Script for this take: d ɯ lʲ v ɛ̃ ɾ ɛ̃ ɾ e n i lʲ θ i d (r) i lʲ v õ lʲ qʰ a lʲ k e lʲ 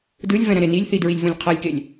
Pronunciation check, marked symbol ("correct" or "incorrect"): incorrect